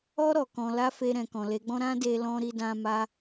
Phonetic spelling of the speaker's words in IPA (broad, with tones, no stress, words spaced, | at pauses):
ɔ˧ ɾɔ˨kɔ̃˧ la˦fe˧ ɾɛ̃˨kɔ̃˨le˨˦ɡ͡bɔ̃˦ ɾã˦de˧ lɔ̃˦ɾi˦dã˦ ma˦